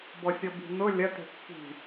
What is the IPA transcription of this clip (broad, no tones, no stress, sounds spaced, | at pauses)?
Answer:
b ɔ sʲ ɔ b i̤ n ʊ lʲ ɐ t e̤ kː i̤